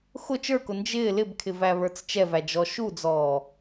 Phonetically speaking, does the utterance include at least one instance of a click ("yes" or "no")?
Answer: no